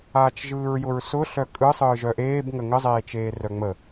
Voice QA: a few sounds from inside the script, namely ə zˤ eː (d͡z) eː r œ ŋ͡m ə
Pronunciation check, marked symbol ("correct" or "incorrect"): incorrect